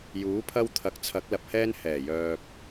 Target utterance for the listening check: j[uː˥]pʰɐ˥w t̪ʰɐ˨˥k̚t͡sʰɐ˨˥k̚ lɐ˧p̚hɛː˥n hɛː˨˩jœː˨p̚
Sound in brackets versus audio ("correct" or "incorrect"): incorrect